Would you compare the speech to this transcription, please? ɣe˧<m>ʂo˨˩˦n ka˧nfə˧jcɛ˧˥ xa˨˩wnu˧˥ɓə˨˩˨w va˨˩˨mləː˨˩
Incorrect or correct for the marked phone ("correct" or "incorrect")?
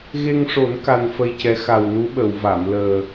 incorrect